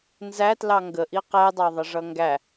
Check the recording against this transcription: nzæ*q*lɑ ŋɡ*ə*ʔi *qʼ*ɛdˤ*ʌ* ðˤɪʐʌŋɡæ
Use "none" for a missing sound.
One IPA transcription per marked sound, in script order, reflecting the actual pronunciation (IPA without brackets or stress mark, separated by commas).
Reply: t, ə, q, ɑ